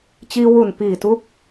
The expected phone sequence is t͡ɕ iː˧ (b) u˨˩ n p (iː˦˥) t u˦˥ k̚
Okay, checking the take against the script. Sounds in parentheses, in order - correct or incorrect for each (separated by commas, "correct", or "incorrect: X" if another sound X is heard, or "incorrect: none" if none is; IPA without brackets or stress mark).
incorrect: w, incorrect: iː˨˩